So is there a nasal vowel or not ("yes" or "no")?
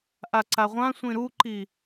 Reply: yes